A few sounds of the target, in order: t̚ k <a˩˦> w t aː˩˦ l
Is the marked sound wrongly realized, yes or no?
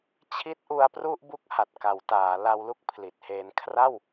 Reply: no